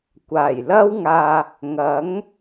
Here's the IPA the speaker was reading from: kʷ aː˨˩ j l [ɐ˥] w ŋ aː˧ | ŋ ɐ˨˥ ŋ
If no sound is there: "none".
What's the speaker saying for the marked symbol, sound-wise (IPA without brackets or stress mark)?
ɐ˥